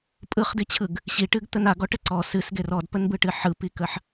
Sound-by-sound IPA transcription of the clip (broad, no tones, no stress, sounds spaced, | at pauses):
pʼ ɯ χ d i t͡ɕʰ ɯ ɡ | ɕ i ʈ ɨ ɡ t̪ ə n a ɡ ɔ ʈ ə ǀ ɔ s ɨ s ɡ e r ɔ d p ə n b ɯ ʈ ɨ ħ ɯ p i k ə ħ